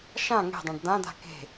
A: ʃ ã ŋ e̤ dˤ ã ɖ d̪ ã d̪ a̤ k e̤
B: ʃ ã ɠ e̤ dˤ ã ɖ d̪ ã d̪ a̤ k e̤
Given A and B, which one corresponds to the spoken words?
A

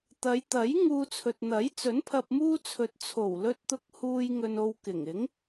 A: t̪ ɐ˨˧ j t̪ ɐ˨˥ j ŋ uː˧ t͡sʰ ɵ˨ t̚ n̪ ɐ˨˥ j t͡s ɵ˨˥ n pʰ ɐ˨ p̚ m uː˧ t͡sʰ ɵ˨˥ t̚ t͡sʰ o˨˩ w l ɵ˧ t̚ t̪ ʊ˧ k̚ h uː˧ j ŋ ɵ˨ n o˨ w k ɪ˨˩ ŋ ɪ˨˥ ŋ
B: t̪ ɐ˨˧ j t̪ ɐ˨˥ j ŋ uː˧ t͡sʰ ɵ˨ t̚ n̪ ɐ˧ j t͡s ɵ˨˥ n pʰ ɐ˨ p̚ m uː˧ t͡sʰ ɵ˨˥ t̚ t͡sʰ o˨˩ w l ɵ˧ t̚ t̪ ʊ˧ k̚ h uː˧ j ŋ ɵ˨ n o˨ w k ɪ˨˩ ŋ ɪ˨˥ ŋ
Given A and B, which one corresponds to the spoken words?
A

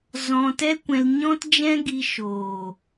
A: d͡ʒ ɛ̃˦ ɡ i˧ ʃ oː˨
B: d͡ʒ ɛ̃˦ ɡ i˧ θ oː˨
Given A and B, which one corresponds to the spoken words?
A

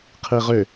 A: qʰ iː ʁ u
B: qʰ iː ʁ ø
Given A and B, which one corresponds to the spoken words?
B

